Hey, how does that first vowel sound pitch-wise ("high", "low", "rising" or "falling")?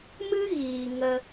high